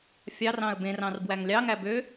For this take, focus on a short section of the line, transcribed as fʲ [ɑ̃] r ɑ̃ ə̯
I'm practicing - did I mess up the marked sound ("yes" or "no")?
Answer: yes